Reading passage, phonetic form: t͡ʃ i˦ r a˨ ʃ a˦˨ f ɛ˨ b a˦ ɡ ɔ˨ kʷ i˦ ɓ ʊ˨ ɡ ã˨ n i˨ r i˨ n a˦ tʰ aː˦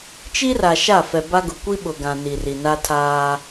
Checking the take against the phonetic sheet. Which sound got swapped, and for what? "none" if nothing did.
ɔ˨ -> ʊ˨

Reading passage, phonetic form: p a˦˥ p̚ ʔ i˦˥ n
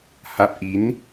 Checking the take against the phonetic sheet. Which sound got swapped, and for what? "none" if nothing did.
p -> h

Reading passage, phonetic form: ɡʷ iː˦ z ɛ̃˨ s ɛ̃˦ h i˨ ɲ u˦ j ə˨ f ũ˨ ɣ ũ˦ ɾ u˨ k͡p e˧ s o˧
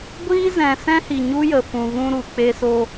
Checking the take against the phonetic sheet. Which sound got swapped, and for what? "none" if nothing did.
none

